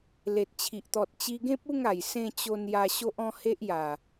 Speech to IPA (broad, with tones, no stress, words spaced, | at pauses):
le˨t̚ t͡ɕʰi˨ʔt̪ɔ˨t̚ t͡ɕi˧ɡẽ˦p̚u˥˧ŋa˨˩j sẽ˧ t͡ɕo˧nja˧ ɕo˦ʔɔ̃˦ he˦ʔja˨˩